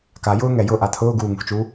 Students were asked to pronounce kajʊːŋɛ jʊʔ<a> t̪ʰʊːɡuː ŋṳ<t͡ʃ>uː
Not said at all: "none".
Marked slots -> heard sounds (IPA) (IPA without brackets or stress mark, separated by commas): a, t͡ʃ